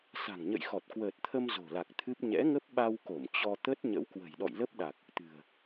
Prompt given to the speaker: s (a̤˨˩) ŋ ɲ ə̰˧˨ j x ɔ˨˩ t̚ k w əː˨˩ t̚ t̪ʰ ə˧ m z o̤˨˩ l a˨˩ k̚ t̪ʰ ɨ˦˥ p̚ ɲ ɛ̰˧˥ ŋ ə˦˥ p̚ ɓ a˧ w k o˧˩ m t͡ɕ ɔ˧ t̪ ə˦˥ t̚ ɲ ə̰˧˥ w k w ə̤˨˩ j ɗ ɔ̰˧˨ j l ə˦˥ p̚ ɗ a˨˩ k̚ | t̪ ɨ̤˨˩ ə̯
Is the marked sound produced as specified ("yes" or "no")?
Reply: yes